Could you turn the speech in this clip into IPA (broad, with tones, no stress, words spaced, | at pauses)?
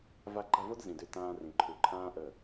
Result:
va˧ɡ͡ǃa˦˨vo˦d zĩ˨dʏ˧ tãː˧ rĩ˨ǃʰu˨ǃʰãː˦ ʔə˦˨